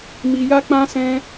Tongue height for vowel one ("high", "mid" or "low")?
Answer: high